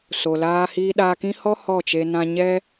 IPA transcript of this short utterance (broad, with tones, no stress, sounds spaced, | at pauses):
s o˨ l aː˧ h iː˧ ɗ aː˧ k ĩ˦ h ɔ˦ h ɔ˦˨ t͡ʃ e˧ n ã˧ ɲ ɛ˦